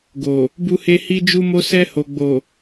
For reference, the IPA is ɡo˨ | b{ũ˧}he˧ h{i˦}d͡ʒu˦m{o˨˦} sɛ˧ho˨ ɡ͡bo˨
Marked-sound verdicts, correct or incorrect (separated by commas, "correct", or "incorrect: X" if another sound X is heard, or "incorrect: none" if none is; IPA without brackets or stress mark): incorrect: u˧, correct, incorrect: o˦